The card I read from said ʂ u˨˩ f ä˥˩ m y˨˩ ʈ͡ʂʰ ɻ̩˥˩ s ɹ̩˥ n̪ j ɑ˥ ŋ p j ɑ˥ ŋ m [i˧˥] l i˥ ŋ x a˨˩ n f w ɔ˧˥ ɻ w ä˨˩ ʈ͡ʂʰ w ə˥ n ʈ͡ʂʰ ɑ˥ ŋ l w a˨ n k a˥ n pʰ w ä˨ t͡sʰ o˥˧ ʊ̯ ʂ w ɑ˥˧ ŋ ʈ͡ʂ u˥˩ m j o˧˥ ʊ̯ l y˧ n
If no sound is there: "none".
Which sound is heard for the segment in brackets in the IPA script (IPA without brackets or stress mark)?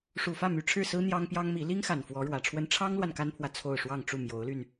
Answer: i˧˥